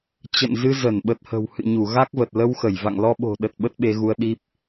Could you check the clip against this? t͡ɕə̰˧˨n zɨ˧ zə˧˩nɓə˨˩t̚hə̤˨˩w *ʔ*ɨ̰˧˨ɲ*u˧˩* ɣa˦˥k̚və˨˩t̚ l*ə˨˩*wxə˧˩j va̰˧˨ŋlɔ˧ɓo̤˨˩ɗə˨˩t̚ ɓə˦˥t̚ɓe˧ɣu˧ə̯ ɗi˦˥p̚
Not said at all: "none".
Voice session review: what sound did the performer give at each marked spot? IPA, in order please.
h, u˧˩, ə˧

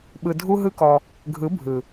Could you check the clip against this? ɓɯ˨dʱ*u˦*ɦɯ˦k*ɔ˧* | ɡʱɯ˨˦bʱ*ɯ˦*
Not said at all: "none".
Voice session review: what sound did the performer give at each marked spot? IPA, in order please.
u˦, ɔ˧, ɯ˨

